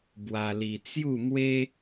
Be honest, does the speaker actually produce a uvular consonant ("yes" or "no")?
no